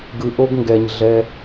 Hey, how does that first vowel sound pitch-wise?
low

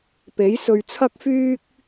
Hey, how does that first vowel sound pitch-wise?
rising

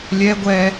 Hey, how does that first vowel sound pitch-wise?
high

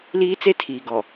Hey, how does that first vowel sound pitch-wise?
high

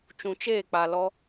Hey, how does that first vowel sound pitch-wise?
low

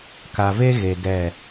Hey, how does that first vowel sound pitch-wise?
low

